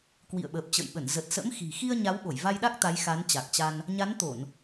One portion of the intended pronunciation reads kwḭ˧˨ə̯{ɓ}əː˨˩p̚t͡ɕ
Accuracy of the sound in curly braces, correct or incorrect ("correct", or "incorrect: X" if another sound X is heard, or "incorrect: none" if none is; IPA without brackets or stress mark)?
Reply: correct